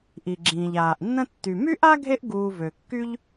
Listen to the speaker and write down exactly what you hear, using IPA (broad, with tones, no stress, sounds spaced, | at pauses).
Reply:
ʔ i˩ ɡ͡ǁ ĩː˩ ʎ aː˩ ʔ nː ə̃˦ tː y˩ m y˥ ʔ a˥ ɡʱ e˦ ʔ ɡ uː˨ v ø˩ kː y˦ ʎ